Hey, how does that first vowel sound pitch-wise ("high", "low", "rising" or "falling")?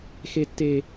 high